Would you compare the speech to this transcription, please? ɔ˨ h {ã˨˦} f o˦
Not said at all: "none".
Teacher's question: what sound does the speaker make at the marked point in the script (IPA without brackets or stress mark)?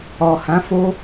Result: ã˨˦